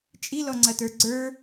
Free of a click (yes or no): no